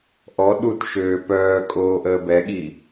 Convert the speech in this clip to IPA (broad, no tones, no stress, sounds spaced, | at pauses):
ʔ ɔ ɗ u t ʃ øː p œː kʼ oː ʔ əː b ɛ ɠ i